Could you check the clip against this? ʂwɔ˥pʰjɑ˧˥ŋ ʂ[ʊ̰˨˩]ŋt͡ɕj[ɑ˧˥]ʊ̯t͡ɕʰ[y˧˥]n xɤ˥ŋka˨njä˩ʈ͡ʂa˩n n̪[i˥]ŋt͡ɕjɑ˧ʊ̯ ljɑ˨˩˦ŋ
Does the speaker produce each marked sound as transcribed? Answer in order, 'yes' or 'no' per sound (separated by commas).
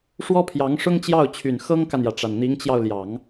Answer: no, no, no, no